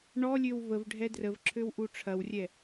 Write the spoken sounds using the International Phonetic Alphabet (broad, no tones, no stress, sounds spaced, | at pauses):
ɳ ɔ lʲ ø w v ə v ɖʱ ɛ d r ə v ǁʰ ø w ʔ u ʈ͡ʂʰ ɐ w rʲ ɛ